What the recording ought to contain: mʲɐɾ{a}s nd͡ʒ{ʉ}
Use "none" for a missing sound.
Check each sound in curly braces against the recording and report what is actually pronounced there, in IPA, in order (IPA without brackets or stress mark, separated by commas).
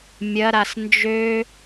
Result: a, ø